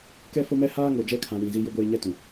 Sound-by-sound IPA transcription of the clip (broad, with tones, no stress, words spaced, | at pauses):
kɛ˦fʊ˦mɛ˦ haː˦ŋo˨d͡ʒɛ˦kʰã˨ wĩ˨ zi˦jʊ˦ɡʷeː˦ ɲɛ˦tũ˨